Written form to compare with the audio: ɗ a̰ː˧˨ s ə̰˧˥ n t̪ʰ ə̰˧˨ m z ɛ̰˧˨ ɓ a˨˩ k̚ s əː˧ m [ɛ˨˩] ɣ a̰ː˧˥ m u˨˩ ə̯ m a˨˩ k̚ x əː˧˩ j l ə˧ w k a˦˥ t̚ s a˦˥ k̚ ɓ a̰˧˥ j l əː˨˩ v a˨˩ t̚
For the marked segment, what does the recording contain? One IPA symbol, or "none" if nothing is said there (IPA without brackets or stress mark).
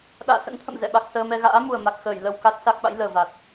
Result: ɛ˧